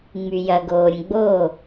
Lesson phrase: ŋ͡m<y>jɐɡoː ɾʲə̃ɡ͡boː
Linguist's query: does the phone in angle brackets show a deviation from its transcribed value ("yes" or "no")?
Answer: no